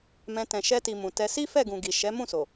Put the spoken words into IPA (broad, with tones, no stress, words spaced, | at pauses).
mɛ̃˧ tɛ̃˨ʃɛ˧ti˨ mũ˨tɛ˧ si˦fɛ˦˨ɡũ˨ ɡi˨ʃɛ˨˦mũ˦˨ so˨